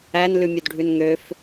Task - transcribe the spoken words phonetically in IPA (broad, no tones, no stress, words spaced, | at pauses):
æn lʉmʲɵdɖʱʉnŋøf